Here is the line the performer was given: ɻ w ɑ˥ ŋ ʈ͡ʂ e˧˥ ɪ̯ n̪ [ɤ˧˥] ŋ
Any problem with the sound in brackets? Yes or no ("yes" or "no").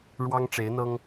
yes